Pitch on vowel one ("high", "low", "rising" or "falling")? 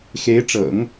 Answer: rising